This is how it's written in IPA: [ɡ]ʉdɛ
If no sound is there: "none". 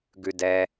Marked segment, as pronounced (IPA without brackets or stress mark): ɡ